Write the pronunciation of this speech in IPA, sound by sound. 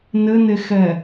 n ɘ n e x ɛ

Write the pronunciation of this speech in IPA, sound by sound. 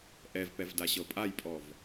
ʔ ɛ v p ɛ v d a ɕ ɤ pʼ a j pʼ ɔ v

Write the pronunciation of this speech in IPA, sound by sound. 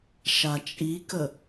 ʃ a t͡ʃʼ i k ə

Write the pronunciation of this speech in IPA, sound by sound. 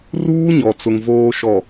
r uː˦ ɲ ɔ˨ t͡s ʊ˨ ŋ v oː˨ ʃ ɔ˨

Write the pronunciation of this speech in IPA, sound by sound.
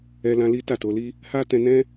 ɛ˧ l ã˧ l i˦ t a˦˨ t o˧ l i˦ | h a˦ t ɛ̃˧ n ɛ̃˦

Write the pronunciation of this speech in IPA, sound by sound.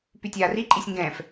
p y tʲ aː r i ǃʼ i sʲ ŋ ɡ ɛ̃ː f

